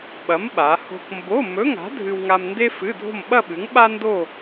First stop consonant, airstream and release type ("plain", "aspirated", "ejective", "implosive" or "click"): implosive